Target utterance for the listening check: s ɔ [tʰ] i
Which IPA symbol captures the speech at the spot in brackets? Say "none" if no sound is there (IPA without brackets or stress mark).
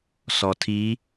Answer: tʰ